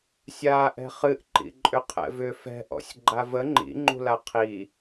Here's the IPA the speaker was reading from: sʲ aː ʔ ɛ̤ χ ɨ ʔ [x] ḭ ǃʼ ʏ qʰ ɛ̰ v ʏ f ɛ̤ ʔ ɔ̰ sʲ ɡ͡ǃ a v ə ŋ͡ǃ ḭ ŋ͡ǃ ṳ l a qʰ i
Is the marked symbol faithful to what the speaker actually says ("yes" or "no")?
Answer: no